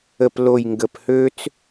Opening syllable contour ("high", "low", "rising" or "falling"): low